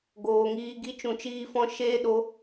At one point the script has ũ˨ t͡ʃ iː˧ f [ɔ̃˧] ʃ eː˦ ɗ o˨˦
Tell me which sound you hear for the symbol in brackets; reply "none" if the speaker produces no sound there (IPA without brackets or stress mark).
ɔ̃˧